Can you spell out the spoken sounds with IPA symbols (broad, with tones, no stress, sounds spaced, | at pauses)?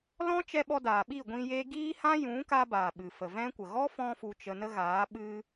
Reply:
l ɔ̃˦ t͡ʃ ɛ˧ ɓ ɔ˧ d aː˨ ɓ i˦˨ ɡʷ ĩ˧ j e˦ ɡ iː˦ h ã˦ j ũ˨˦ k a˦ b aː˨ ɓ ɨ˨ f ə˨ v ɛ̃˦ kʷ ə˨ ɣ ɔ˦ f ɔ̃˧ f u˧ t͡ʃ ə˧ n ə˦ ɣ aː˨˦ ɓ ɨ˧